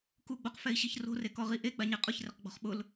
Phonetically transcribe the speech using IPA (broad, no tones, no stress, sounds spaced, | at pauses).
k u ɡ͡b o q f ɛ i̯ ɕ i ç r o̤ r e k ɔ ʁ i ʔ e ɡ͡b a ɲ ɛ qʼ ʊ ç r ɪ q ɡ͡b ɔ̤ χ ɓ ʊ l